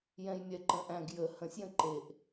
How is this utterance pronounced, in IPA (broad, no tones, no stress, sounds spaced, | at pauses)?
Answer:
j ɛ̃ j mʲ ɛ ǃ ə̃ ʔ æ̃ ɡ j ə h ə̃ sʲ j ə̃ ǃ e ʔ